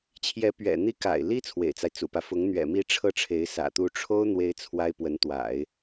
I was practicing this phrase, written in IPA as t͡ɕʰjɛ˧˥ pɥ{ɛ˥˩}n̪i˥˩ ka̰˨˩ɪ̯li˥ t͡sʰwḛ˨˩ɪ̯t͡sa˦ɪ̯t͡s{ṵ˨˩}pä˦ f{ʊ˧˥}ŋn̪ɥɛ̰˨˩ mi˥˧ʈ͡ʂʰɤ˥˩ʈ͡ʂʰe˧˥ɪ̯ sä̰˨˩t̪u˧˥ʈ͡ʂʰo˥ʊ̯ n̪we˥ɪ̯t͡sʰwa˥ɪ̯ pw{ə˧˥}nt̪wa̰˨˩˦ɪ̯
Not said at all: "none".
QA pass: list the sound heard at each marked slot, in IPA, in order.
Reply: ɛ̰˨˩, ṵ˨˩, ʊ˧˥, ə˧˥

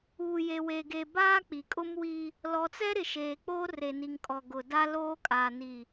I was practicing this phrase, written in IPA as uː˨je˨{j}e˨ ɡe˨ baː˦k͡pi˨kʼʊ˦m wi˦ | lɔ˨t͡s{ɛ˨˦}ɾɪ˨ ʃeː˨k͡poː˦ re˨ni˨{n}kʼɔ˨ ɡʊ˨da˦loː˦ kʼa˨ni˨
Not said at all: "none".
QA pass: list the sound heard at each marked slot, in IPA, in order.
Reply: w, ɛ˦, ŋ

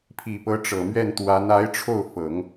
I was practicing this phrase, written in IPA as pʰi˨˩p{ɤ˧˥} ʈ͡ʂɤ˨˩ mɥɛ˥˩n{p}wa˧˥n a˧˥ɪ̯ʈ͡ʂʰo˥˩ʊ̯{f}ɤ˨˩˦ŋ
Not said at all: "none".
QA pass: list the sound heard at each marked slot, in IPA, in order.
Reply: ɤ˧˥, t̪, f

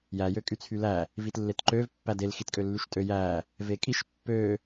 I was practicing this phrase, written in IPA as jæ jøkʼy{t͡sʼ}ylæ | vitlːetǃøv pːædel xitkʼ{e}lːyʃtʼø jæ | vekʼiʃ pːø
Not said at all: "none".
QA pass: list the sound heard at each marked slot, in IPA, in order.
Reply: t͡sʰ, ø

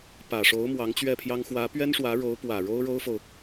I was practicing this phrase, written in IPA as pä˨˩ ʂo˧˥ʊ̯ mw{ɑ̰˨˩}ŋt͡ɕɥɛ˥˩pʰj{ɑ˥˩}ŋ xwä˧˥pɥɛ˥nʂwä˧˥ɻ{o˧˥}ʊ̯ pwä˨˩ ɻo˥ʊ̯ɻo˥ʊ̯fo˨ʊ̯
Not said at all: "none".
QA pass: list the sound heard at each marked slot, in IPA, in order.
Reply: ɑ˧˥, ɑ˥, o˧˥

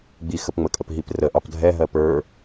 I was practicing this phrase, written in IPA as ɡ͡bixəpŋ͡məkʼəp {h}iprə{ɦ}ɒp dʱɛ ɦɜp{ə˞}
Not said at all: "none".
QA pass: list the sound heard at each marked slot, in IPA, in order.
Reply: ɦ, ʔ, ə˞

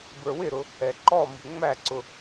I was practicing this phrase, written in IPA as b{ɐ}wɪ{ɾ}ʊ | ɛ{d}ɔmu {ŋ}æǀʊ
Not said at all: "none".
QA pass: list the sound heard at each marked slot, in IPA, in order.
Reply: ə˞, ɾ, ǃ, ŋ͡m

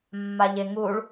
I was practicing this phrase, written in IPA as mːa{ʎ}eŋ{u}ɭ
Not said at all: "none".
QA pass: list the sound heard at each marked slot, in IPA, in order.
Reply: ʎ, u

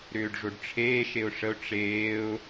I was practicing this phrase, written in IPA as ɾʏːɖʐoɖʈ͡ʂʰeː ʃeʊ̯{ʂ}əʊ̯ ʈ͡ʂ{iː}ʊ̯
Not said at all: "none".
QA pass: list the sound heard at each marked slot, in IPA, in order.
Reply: ʂ, eː

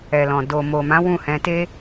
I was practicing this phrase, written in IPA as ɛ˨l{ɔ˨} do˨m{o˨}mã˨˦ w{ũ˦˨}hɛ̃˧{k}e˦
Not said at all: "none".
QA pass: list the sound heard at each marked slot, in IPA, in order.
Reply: ɔ̃˨, o˨, ũ˦˨, t

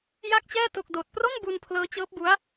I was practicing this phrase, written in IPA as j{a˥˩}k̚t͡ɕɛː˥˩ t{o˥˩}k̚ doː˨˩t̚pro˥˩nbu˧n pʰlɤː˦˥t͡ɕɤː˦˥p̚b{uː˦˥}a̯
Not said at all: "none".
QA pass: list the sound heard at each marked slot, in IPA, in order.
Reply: a˥˩, o˥˩, u˦˥

